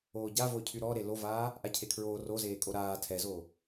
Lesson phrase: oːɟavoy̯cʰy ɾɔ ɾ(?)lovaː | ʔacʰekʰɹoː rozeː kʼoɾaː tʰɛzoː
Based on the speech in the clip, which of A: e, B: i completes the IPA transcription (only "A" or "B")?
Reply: A